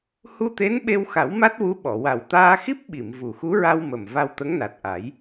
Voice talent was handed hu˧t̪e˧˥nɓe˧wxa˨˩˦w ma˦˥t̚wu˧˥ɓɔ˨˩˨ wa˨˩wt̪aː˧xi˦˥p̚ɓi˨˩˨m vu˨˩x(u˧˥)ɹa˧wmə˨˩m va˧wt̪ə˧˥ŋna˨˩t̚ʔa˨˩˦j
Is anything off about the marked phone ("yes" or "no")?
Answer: no